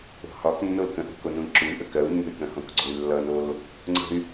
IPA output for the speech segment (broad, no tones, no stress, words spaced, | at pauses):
o̤hɒknːol kə̃ʔo̤ konũi̯ǁuy̯ʔə kɜu̯ nːə̤y̯kə̃hõk ɡ͡ǀoy̯lːʌnol | ŋ͡ǀə̤y̯